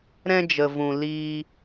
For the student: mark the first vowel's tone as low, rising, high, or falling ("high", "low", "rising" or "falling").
high